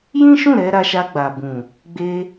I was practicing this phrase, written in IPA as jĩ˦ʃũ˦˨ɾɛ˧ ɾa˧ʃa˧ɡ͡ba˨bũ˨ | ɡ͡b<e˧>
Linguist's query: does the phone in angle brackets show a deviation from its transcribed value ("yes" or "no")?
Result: no